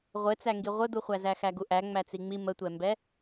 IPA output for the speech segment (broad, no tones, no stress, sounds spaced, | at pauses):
ʁʷ ɘ t͡s æ ŋ ɡ i ʁʷ ɘ d̪ u χʷ æ z æ x æ ɡ u ʔ æ ŋ͡m æ t͡s i ŋ͡m i m ə tʷ ɛ m b ɛ